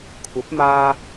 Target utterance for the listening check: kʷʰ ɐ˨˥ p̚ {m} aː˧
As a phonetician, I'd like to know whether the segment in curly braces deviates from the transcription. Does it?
no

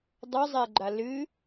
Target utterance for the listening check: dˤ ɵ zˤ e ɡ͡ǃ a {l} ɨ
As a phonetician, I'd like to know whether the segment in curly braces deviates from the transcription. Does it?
no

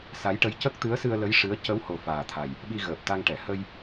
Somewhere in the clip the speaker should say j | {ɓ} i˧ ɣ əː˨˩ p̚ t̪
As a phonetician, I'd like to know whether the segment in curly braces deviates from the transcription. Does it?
no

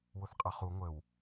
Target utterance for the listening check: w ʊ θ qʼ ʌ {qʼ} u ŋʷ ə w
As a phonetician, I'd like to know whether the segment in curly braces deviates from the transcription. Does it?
yes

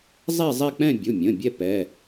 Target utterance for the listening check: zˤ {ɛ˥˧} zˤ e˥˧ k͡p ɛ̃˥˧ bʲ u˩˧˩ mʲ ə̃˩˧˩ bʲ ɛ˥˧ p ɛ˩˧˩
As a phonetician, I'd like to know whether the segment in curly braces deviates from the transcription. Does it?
no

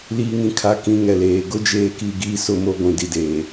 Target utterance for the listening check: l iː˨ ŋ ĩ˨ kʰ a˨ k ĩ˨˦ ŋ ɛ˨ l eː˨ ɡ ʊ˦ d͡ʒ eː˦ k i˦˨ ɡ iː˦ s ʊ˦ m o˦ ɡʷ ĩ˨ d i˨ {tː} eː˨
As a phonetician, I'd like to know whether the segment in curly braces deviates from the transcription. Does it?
yes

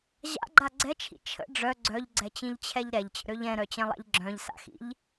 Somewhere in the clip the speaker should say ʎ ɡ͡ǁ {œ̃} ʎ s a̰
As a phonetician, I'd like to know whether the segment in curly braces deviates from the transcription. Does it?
no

